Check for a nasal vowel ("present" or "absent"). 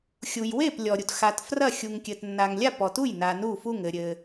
absent